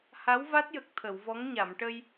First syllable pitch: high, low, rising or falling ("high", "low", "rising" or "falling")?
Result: rising